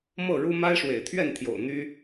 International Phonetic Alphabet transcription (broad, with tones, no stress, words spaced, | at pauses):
mɤ˥˨ɻu˦ ma˦ɪ̯ʂwḛ˨˩ɪ̯t̪ʰɥɛ˥˨nt̪ʰjo̰˨˩ʊ̯ n̪y˦